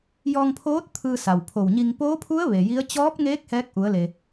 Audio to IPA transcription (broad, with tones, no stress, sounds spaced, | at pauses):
j ɔː˧ ŋ pʰ oː˧˥ t̚ t̪ʰ ɯː˧ s a˩ w pʰ o˧˩ w ɲ i˧ ŋ p oː˧˥ pʰ u˧˥ ə̯ ʋ e˩ j i˧˥ ə̯ t͡ɕ ɔː˧˥ p̚ ŋ eː˧˥ k̚ h ɛː˧˥ k̚ ʔ u˩˧ ə̯ l e˩